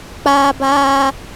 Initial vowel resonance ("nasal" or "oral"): oral